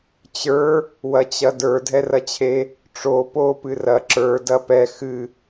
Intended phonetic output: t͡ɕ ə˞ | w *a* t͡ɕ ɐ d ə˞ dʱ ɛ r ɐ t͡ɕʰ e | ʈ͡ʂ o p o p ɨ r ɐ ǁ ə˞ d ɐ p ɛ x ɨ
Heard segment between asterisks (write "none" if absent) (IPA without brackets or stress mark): ɐ